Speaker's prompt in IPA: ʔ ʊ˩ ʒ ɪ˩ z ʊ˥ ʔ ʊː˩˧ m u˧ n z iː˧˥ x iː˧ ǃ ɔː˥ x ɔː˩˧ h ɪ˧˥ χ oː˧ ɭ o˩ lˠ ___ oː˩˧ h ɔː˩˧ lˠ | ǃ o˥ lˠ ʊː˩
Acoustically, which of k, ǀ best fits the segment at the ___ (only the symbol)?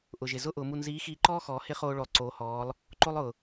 ǀ